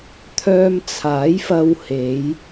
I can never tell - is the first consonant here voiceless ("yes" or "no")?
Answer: yes